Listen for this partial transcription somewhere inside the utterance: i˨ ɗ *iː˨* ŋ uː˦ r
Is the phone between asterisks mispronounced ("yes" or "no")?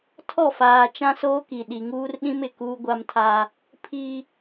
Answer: yes